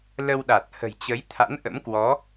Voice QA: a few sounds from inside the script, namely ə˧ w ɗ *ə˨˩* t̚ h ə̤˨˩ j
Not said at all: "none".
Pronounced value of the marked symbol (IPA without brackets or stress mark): a˨˩